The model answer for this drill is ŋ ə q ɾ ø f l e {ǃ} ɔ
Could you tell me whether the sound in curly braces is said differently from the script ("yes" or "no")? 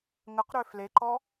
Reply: no